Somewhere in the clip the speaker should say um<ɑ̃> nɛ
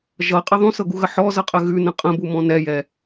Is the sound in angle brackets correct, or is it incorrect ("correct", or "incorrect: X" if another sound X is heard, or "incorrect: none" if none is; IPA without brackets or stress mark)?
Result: incorrect: ɔ̃